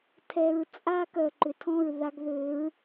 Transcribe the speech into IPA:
tʰɛ˨ɹt͡sʼa˧ kœ˨ǃʏ˨tʰɔ̃˦˨ɹ ða˧ɡðø˨˦ɹ

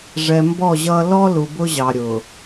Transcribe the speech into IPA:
ʐɛ˨mbɔ˦˨ʑʌ˦ lɔ˦lu˨ bʊ˦ʑɑ˨ɾʲʊ˨

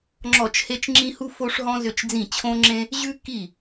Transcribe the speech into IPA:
ŋ͡ǁɔ˥˩t͡ʃhe˥t͡ʃŋ͡ǁĩ˥ hu˥fo˥ʂɦɔ̃˥ zʏ˥˩t͡ʃd͡zĩ˥˩t͡ɕʰõ˥ŋ͡ǁẽ˥ | ʑʉ˥ki˥˩

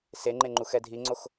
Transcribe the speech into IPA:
seŋ͡ǃeŋ͡ǃu xɛdʱiŋ͡ǀox

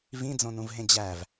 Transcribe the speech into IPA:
vĩd͡zõnũvɦẽ d͡ʑæv

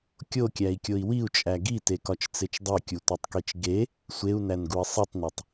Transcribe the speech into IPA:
kʲokʲæi̯kʲoi̯ wiu̯t͡ʃʼæ ɡitekɒt͡ʃt͡set͡ʃ dˤekʲutʷetˤkit͡ʃ ɡe | sʷeu̯nænɡui̯ sˤitˤnetˤ

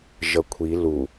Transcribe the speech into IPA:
ʒʌkʷʰi lu

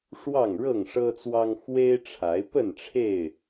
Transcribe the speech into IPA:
ʂwɑ˥˨ŋɻɤ˥˨ŋʂɤ˦t͡swɑ˦ŋ xwe˦ɪ̯ʈ͡ʂʰa˨˦ɪ̯ pə˥˨nʈ͡ʂʰe˥˨ɪ̯

